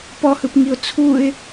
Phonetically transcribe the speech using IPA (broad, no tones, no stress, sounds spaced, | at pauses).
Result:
p ɔ h ɯ p ŋ i ʊ̯ t͡sʰ u ɪ̯